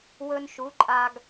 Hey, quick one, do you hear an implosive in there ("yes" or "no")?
no